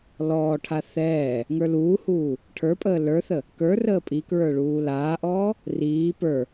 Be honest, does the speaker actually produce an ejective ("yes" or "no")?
yes